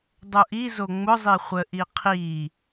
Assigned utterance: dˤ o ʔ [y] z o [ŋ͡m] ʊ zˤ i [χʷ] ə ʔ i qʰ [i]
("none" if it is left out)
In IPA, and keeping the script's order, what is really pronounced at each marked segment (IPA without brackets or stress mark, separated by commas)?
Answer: i, ŋ͡m, χʷ, i